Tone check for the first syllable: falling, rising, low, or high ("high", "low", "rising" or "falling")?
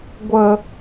low